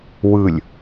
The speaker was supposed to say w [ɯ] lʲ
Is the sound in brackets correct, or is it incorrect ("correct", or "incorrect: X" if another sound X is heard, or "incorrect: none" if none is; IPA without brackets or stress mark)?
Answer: correct